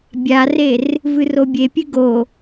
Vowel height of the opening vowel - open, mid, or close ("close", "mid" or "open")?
open